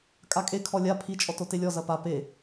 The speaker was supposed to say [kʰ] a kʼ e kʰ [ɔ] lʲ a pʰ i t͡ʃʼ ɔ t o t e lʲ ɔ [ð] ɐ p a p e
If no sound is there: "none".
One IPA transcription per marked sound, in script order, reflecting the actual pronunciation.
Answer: kʼ, ɔ, z

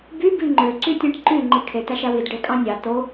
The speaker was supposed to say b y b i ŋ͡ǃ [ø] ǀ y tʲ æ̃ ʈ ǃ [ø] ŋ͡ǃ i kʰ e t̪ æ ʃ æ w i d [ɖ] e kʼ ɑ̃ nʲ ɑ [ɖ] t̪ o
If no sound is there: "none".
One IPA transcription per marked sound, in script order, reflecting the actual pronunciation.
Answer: ø, y, ɖ, none

